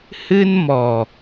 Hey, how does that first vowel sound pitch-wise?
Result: high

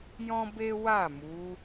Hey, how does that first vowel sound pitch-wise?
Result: high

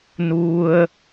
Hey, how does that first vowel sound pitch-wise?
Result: high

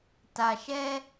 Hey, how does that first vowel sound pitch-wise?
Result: low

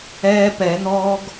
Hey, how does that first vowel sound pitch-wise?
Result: high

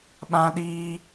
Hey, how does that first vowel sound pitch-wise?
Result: high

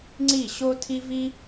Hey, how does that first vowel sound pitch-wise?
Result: falling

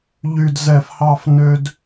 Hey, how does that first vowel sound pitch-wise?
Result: low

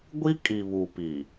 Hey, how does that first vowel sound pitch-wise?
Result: high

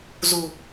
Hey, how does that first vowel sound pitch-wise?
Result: low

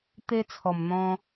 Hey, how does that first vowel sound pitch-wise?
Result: high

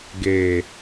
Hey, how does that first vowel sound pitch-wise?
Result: low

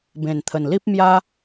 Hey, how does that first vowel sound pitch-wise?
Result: low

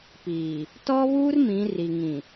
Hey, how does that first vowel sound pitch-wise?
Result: low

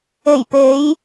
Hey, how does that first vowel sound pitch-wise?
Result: low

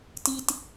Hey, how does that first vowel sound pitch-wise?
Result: low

